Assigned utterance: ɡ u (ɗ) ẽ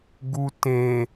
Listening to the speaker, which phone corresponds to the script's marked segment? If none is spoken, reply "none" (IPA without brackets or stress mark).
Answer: t